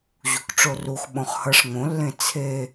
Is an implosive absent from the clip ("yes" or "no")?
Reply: no